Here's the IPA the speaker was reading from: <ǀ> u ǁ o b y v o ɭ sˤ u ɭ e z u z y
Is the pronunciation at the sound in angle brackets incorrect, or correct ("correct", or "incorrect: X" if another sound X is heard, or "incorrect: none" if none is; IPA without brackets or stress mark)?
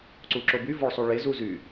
correct